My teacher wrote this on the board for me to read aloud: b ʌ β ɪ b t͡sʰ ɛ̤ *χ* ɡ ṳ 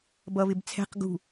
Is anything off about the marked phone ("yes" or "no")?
yes